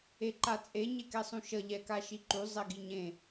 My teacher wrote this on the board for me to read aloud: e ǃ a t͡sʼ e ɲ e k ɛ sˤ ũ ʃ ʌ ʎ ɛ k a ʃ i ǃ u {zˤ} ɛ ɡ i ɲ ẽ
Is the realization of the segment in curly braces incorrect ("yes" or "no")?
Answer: no